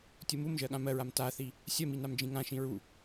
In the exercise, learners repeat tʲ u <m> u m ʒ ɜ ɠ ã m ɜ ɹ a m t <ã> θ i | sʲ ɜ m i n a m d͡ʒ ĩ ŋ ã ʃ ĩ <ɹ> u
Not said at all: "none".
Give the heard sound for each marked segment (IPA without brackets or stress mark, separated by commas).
m, a, ɹ